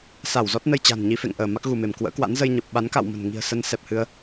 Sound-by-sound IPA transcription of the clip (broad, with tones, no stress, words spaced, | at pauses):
sa˧˩wzɔ˦˥t̚nə˧j t͡ɕa̤˨˩n ɲi˧fḛ˧˨ŋʔəː˧˩ ma˦˥k̚ɣu˧˩me˧˩m kwə̰ː˧˥kwa̰˧˥n zə˧jɲə˨˩p̚ ɓa˨˦nka̰˧˨wmə̤˨˩n ŋi̤˨˩ə̯sə˧n sɛ˨˩p̚hɨ˧ə̯